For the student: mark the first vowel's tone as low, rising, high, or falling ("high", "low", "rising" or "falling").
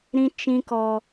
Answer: low